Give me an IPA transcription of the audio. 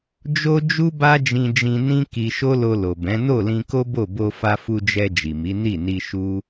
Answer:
d͡ʒ o˦ d͡ʒ u˦ b a˦ d͡ʒ ĩ˧ d͡ʒ ĩ˧ n ĩ˦ k i˧ ʃ o˦ l o˧ l o˨ b ɛ̃˨˦ n o˦˨ l ĩ˧ k o˦ b o˦˨ b o˧ f a˧ f u˧ d͡ʒ ɛ˧ d͡ʒ i˨ m i˨˦ n i˦˨ n i˧ ʃ u˦

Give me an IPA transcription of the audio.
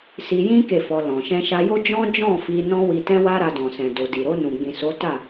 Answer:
s i˧ j ĩ˦ k e˦˨ f ɔ˧ l ɔ̃˨ ʃ ɛ̃˧ ʃ a˧ j o˦ d͡ʒ ɔ̃˦ d͡ʒ ɔ̃˦˨ f i˧ n ɔ̃˦ w i˧ t ɛ̃˦ w a˦ ɾ a˧ d ɔ̃˨ s ɛ̃˨ d o˨ d i˨ ɾ o˧ n ũ˨ ɡ͡b ĩ˨ s o˨˦ t a˦˨

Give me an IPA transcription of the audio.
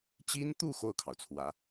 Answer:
t͡ɕ i˥ n t̪ u˥˧ x o˥˩ ʊ̯ kʰ ɑ˩ ʊ̯ t͡sʰ w ä˧˥

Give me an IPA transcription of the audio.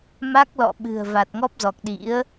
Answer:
m a˦˥ k̚ l ɔ̰˧˨ ɓ ɨ̤˨˩ ə̯ v a˨˩ t̚ ŋ ɔ˦˥ p̚ z ɔ˨˩ k̚ ɗ ḭ˧˥ ə̯

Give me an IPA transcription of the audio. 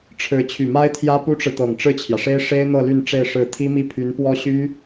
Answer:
ʈ͡ʂʰ ɻ̩˧˥ t͡ɕʰ y˨˩ m a˥ ɪ̯ t̪ʰ j ä˥ p u˥ ʈ͡ʂ ɻ̩˨ t̪ ɤ˨˩ ŋ ʈ͡ʂ ɻ̩˥˩ t͡ɕʰ j ä˩ ʂ e˥ ɪ̯ ʂ e˥ ɪ̯ n̪ ɤ˥˧ l y˥˧ n ʈ͡ʂ e˥˧ ɪ̯ ʂ ɻ̩˥˩ t̪ʰ i˥ m i˥˩ pʰ y˧˥ n p w ɔ˥ ɕ y˥

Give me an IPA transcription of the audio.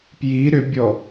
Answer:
p j i ɾ ʏ bʲ ɔ

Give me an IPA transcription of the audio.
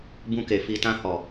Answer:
b ũ˧ k e˨ f i˨ t ã˧ h ɔ˨

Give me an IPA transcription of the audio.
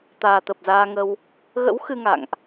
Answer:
t̪ aː˨˩ t̪ ə˨˩ p̚ z aː˧ ŋ ə˧ w | ɣ ə̰˧˥ w x ɨ˧ ŋ a̰˧˨ ŋ ʔ

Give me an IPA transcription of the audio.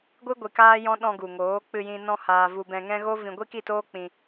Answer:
ɡʷ i˦ ɡʷ i˧ k aː˦ j ɔ̃˦ ɗ ɔ̃˧ ɡ u˨ ŋ oː˨˦ k͡p ɨ˧ j ĩ˧ n ɔ̃˦ h aː˧ v u˧ b ɛ̃˧ ŋ ɛ̃˦ ɣ o˦ v ĩ˧ ɡʷ i˦ k i˦˨ t oː˦ k͡p ĩ˧

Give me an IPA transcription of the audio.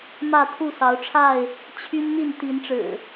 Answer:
m ä˥˨ t̪ʰ u˥˨ s ɑ˨˦ ʊ̯ ʈ͡ʂʰ a˥˨ ɪ̯ | t͡ɕʰ y˦ n n̪ i˥˨ n t̪ i˨˦ n ʈ͡ʂ ɻ̩˨˩

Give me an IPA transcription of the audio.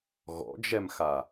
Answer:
ɣ ɔ̰ d͡ʒ ɛ m x a

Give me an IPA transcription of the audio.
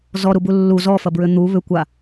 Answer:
z ɔ ɾ u b u lː u z ɔ f ɐ b ɹ ʏ n̪ u β ʏ kʷ a

